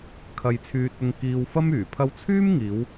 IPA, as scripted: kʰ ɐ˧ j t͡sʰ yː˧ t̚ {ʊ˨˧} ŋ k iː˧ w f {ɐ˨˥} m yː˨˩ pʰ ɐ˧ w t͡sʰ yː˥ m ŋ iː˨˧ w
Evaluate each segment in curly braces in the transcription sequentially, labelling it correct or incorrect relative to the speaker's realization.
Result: incorrect: ʊ˧, incorrect: ɐ˥

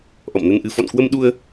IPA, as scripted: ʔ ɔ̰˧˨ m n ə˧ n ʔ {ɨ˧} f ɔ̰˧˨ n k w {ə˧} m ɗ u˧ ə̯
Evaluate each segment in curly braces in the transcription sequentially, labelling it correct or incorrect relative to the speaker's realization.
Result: correct, correct

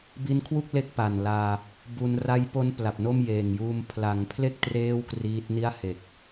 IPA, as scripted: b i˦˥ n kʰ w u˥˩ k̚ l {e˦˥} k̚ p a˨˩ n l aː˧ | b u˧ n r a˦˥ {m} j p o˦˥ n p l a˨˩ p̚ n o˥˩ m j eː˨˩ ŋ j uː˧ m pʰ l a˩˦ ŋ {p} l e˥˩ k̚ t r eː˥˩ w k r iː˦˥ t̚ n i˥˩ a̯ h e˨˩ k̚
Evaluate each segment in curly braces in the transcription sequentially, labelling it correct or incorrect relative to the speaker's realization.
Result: correct, incorrect: none, incorrect: pʰ

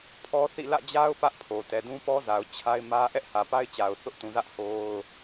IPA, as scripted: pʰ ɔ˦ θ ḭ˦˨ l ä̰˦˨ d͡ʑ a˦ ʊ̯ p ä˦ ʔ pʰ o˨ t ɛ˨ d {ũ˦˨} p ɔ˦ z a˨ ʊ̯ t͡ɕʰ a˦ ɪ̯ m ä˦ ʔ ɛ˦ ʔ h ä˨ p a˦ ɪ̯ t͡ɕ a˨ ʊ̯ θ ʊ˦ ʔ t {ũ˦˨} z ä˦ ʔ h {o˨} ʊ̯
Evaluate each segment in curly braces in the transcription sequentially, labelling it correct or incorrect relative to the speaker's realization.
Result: incorrect: ũ˦, incorrect: ũ˨, incorrect: o˦

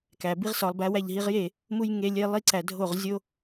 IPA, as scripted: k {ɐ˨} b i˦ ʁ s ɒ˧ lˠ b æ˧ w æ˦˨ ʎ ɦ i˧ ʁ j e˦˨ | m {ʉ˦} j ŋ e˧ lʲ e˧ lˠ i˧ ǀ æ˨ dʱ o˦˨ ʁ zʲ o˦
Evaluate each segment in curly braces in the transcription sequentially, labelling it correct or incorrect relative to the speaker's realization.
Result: incorrect: æ˨, incorrect: u˦

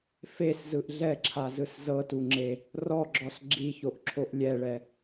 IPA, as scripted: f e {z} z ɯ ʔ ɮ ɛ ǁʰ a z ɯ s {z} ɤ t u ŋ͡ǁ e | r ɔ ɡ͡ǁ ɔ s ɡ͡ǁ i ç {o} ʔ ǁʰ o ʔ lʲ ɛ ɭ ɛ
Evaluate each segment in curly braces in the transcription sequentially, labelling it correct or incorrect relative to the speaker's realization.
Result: incorrect: s, correct, correct

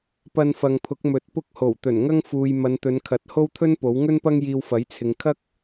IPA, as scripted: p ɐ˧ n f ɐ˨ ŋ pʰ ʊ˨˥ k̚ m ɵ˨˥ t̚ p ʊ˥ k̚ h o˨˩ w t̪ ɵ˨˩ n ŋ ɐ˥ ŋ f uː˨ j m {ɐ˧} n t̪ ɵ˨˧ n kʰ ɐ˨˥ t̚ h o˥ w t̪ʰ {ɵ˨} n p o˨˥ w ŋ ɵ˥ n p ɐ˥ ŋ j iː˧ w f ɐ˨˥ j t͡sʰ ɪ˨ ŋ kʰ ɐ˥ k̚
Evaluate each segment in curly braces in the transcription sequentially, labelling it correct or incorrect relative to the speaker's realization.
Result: incorrect: ɐ˨˧, incorrect: ɵ˥

